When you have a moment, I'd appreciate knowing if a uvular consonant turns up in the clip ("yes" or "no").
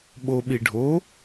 no